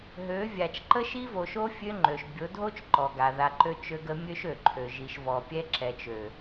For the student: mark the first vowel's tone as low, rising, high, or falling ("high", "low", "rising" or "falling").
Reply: rising